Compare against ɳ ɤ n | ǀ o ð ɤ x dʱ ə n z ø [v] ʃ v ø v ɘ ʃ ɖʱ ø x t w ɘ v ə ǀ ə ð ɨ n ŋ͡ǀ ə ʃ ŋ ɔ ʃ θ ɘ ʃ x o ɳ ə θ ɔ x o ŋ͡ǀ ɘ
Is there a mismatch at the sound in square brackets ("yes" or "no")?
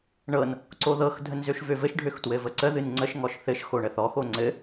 yes